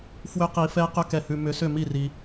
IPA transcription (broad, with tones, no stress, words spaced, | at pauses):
fwʏ˧˥qi˨˩˦fɛ˧˥ qʏ˧˥kɛ˨hʉ˨ mʏ˨˩˦sʏ˥˩mi˥˩ri˨